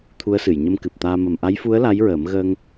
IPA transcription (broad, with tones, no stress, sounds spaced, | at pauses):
t̪ʰ u˧˥ ə̯ s ɨ˨˩˨ j ɲ ə˧ m k ɨ˨˩ p̚ t̪ aː˧ m ə˨˩ m ʔ a˧˥ j f u˧˥ ə̯ l a˧˥ j ɹ əː˨˩˦ m ɣ əː˧ ŋ